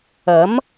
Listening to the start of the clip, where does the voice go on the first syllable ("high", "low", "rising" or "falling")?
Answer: rising